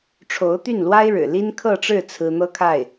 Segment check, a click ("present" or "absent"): absent